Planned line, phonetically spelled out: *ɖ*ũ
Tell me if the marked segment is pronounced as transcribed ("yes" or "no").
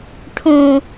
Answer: no